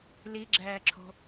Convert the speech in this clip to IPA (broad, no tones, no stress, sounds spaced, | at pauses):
l i ɡ͡ǁ ɛː ǁʰ o̤